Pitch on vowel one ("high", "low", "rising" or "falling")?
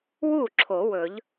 falling